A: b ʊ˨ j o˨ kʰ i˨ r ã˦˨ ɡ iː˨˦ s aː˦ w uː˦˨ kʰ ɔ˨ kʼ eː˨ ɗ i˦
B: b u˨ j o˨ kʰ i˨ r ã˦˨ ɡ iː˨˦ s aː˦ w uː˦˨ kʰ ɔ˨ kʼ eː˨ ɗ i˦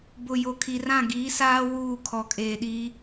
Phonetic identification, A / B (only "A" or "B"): A